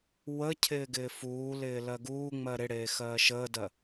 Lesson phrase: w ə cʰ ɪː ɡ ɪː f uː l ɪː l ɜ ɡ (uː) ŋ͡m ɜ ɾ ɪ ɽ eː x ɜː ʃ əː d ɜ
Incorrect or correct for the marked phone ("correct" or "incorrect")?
correct